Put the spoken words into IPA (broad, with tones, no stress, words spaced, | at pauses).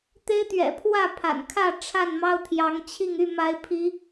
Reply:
t̪e˦ɪ̯t̪ɥɛ̰˨˩pʰwä˥˨ pʰa̰˨˩nkʰä˥˨ ʈ͡ʂʰa˥˨nmɑ˦ʊ̯t̪ʰjɑ˨˦ŋt͡ɕʰi˥˨ŋ y˥˨ma˨˦ɪ̯ pʰi˨˦